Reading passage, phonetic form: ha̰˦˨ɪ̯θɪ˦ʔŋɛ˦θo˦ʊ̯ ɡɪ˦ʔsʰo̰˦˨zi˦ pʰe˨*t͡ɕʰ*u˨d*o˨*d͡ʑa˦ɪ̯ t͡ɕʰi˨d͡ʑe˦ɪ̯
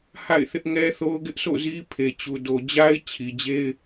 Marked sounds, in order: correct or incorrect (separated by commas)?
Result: incorrect, correct